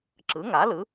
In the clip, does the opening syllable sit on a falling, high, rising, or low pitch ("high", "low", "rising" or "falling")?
rising